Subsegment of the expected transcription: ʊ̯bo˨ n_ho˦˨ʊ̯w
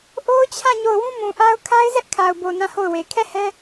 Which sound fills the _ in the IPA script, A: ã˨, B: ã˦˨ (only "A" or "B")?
B